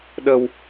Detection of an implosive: present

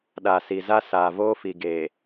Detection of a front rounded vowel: absent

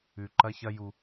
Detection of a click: present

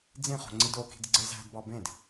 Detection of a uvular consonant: present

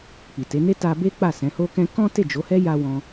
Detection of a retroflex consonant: absent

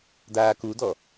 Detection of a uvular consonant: absent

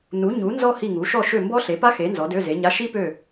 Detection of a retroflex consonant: absent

